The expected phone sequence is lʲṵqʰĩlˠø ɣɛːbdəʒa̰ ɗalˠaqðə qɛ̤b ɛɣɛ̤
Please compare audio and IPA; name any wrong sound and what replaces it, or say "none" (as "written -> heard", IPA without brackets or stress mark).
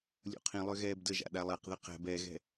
none